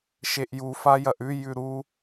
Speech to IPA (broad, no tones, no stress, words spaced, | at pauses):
ʃeʔju fajɐʔʉ jʉɾu